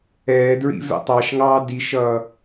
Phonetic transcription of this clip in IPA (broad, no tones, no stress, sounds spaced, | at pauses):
ɛː d ɹ ḭ v ɛ̰ tˤ ɑ ʃ ŋ ɑː d i ʃ ʌ